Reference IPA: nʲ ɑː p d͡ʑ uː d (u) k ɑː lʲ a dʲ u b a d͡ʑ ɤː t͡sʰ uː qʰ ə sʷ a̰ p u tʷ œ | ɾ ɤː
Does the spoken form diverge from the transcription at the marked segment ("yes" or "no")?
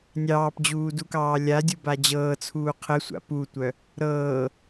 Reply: no